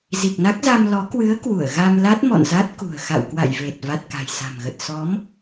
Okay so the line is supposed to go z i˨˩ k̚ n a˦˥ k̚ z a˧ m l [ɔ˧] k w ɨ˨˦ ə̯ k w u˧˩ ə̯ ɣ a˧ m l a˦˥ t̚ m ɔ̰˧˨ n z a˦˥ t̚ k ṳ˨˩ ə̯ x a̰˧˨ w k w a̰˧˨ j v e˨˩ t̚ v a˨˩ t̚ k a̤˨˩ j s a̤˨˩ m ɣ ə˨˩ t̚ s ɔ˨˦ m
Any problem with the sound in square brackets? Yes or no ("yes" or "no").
yes